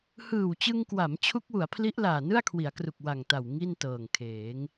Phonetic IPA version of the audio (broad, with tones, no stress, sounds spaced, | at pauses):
h ɯː˨˩ w t͡ɕ ɯ˧ ŋ k w a˩˦ m t͡ɕʰ u˦˥ k̚ w u˩˦ a̯ pʰ l i˦˥ ʔ l aː˨˩ n ɯ˥˩ a̯ kʰ w i˩˦ a̯ k r u˨˩ k̚ w a˨˩ ŋ t a˨˩ w ŋ i˥˩ n t ɤː˨˩ ŋ kʰ eː˩˦ ŋ